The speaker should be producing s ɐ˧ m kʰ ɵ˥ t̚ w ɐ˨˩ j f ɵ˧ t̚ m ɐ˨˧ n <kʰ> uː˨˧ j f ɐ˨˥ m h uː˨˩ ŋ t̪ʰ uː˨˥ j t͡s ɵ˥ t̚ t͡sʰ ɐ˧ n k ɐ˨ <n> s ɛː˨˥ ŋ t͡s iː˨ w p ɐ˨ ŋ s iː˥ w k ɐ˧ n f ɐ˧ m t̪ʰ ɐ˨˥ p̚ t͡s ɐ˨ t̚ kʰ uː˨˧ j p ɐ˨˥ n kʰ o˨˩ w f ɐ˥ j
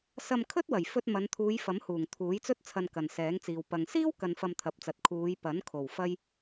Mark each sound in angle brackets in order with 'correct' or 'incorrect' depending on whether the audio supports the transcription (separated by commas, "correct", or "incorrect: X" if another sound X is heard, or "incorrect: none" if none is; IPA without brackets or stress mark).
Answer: incorrect: t̪ʰ, correct